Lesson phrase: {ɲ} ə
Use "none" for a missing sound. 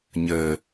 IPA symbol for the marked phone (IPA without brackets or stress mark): ɲ